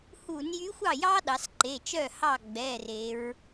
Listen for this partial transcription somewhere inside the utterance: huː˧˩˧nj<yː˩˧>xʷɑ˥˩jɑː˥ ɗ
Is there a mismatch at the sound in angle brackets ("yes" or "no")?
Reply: yes